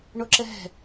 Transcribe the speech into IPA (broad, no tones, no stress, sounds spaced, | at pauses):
ɳ o ǁ ɛ ɦ ɛ̤